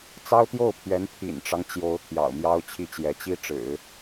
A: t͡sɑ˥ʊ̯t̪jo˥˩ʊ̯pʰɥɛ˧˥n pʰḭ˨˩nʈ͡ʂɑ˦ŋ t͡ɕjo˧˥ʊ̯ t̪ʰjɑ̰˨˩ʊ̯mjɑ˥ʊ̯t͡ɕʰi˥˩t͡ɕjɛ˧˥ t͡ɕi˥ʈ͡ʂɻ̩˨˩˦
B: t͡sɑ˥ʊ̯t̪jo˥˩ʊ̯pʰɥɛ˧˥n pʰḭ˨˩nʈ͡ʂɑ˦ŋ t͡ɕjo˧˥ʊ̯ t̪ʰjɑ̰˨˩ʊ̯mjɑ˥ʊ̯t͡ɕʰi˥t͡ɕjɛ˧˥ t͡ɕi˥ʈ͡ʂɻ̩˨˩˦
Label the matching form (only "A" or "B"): A